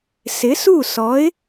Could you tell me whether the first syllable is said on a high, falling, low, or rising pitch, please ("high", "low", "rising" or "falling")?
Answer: rising